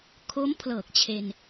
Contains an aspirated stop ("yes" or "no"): yes